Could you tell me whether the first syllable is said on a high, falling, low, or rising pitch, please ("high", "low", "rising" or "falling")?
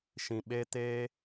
low